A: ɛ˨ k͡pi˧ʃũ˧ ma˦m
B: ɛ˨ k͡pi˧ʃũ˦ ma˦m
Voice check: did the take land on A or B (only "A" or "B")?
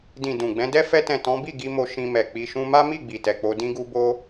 B